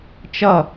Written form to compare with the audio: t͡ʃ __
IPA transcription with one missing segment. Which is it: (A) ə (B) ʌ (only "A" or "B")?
B